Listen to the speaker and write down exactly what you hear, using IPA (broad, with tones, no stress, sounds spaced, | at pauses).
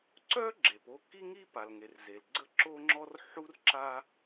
ǀ œ˥ ɡ͡ǁ e˩ p o˥ k i˥ ŋ i˥ p a˩ l ŋ e˩ r z e˩ l ɡ͡ǀ ə˥ ǁ o˥ ŋ͡ǁ ɔ˥ r ħ u˥ r ǁ a˥